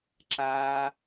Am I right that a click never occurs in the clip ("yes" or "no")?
no